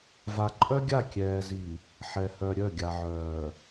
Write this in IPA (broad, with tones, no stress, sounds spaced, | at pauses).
v a˨ ǃʼ œ˦ ɡʲ a˦˨ kʲ ɛː˨ z i˨ | ħ ɛ˨ h œ˨ ɾʲ œ˦˨ ɡʲ a˨ ʕ œː˨